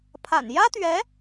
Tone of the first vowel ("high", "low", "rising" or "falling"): low